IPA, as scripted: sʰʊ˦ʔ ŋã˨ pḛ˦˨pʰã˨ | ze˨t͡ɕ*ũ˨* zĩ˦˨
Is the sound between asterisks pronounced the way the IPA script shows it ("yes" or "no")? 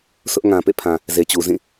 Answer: no